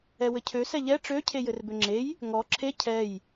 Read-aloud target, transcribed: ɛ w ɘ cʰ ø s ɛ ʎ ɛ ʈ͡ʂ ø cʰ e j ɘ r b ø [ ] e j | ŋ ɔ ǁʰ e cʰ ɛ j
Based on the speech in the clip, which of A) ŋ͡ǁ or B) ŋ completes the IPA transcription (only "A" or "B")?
A